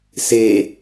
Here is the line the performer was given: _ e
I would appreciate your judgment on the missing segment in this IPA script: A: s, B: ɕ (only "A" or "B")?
A